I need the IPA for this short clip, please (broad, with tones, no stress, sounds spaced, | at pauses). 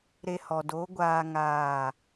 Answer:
ɾ e˧ h ɔ˨ d o˨˦ ɡʷ aː˧ ŋ aː˦˨